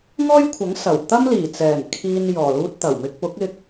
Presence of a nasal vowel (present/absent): absent